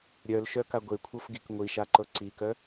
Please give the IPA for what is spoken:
ɾʲœlʃœ kaɡʷekʷʰɤf ɡikŋʷiʃa ǃɤǀikœ

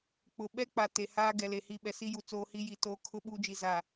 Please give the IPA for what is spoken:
k͡pʊ˨ɓɛ˦ k͡pa˨te˨haː˦ ɡɛ˨le˨hi˦˨ ɓɛ˨si˦ju˨ t͡soː˦hi˦ji˨ toː˦kʰʊ˦ ɓuː˦d͡ʒi˨za˨

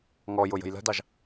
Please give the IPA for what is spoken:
ŋɔjʊ jə̤jlə̤dɑʒ

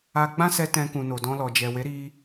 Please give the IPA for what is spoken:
a˧ɡ͡bã˦sɛ˧ tɛ̃˧kũ˨ no˨dɔ̃˧lɔ˨d͡ʒɛ˨ we˨˦ɾi˧

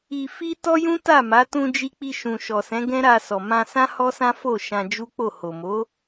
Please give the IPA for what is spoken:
i˧fi˦ tɔ˦jũ˦ta˦˨ma˨˦ tũ˧d͡ʒi˧k͡pi˧ ʃũ˨ʃɔ˨sɛ̃˨˦ ɡɛ̃˦ɾa˧sɔ˨ mã˧sã˦ hɔ˦sã˦ fo˦˨ ʃã˧ d͡ʒu˦k͡po˦˨ ho˨mo˨˦

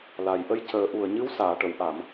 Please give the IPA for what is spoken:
la˨˩j ʔə˧jcəː˨˩˦ʔu˨˩ə̯ ɲɨ˧˥wsaː˨˩˨ʈə˨˩˨w ʔa˨˩˨m

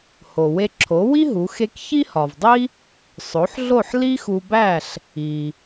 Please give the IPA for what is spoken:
ho˩we˧ǁʰo˩˥wi˥ ɦu˩˥xe˥k çi˥hɒ˩vdˤi˥ | sˤo˩˥ħɮo˥˩ħ li˥xu˧bæ˥˩ɬ | i˩

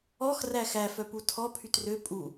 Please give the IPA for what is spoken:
ɔx ræxæ fœputʰɔ pʰytrø pʼu

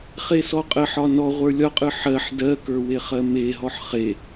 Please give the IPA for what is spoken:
χesɔqʼəħɒ nɔ ʁʷə˞lʲɒqʼɯ ħɜħ dɜkə˞ weχɜmeɦɔħ χe

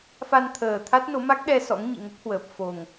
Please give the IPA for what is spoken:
fa˧nt̪ʰəː˨˩t̪ʰa˦˥t̚no˨˦ ma˦˥k̚ɗɛ˧ sɔ̰˧˥ŋɲḭ˧˨ŋə˦˥p̚hwəː˨˩p̚ fo˨˩ŋ

